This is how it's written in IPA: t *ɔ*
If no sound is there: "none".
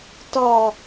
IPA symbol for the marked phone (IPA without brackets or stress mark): ɔ